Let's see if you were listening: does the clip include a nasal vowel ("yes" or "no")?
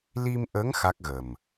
no